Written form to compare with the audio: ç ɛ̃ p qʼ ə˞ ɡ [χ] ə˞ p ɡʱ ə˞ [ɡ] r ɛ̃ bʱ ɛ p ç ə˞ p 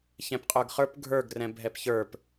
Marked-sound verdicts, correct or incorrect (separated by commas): correct, correct